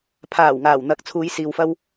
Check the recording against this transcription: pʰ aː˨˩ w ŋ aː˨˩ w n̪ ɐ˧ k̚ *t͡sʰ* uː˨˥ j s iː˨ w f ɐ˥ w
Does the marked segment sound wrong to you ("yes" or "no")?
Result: no